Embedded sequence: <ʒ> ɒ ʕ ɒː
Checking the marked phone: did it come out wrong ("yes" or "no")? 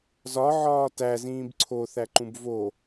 yes